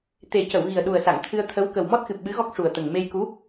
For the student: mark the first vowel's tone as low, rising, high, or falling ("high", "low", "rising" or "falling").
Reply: low